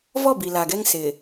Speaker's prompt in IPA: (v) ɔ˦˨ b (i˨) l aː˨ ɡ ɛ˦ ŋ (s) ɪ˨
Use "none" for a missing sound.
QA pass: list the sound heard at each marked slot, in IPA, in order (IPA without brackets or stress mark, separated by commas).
v, i˨, s